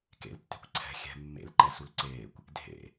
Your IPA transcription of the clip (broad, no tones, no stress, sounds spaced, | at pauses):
k ḛ l tː e̤ kʷ ǀʰ ɛ̤ xʲ ɛ̤ mː ḛ l ǃ ɛ s u l ǀ eː kʷ | dʱ ḛ